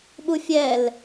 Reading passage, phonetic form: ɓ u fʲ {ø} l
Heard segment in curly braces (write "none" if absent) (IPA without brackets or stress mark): ɛ